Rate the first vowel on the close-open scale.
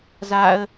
open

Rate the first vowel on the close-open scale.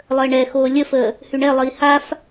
mid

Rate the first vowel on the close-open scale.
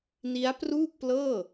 close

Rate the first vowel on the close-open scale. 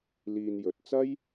close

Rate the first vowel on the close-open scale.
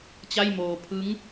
open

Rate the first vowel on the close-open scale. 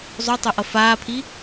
mid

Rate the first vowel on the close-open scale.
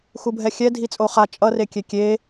close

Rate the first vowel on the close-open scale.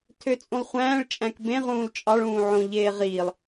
mid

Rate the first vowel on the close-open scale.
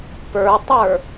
mid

